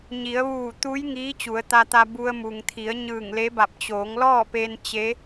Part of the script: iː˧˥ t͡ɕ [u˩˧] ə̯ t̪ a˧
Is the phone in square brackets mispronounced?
no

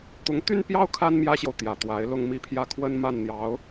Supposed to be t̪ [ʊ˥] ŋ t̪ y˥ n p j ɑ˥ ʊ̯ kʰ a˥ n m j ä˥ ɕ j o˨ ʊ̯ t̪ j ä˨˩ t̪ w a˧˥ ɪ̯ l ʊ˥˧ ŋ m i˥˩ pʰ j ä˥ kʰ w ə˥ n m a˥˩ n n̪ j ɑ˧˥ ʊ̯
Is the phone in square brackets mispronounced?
yes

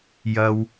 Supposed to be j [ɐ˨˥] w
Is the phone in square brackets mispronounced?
yes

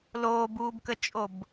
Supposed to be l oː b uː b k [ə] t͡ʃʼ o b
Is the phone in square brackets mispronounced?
no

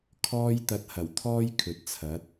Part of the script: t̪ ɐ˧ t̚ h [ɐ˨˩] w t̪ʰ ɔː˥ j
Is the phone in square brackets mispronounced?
no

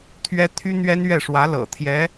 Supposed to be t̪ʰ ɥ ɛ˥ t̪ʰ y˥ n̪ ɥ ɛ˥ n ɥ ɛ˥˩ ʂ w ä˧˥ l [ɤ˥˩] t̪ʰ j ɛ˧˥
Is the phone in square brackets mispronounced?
yes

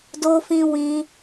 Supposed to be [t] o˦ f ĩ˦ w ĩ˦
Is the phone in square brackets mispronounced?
yes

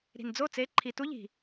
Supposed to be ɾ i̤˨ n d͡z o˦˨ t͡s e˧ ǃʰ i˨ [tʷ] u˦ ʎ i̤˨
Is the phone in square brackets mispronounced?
yes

